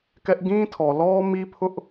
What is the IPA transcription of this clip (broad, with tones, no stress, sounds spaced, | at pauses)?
k ɛ˦ ʔ ɡ ĩ˦ tʰ ɔ˨ l ɔ˦ m i˦ pʰ ʊ˦ ʔ